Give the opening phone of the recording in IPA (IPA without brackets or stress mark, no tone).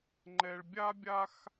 ŋ͡ǃ